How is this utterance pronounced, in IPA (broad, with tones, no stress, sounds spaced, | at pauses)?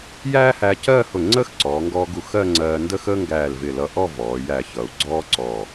j æː˥ h æ˧ c ɜː˥˧ h ʊ˧˩ ŋ͡ǀ əː˥ x ǀ ɔː˩˧ ŋ ɡ ɔː˧ ɡ u˧˩ x ɜ˥˧ ŋ͡ǀ ɜː˧ n d ə˥ x əː˥ ŋ ɡ æː˧˩ l v ɪ˧˩ l ʌ˧ ʔ ɔ˥˧ v ɔː˩˧ j æ˧˩ ç ʌ˩˧ u̯ ɡ͡ǀ ɔː˥ ǀ ɔ˧˩